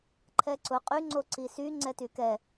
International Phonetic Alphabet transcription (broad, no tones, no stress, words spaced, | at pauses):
ǃʰɛǀʊ qʼyŋ͡ǀo ǀisy ŋ͡ǀɛtykɛ